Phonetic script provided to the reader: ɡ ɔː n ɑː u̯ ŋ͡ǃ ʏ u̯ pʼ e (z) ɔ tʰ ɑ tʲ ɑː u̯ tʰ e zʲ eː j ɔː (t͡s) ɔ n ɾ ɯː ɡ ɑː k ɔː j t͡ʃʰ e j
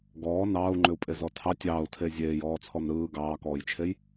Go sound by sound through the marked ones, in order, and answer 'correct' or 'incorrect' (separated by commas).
correct, incorrect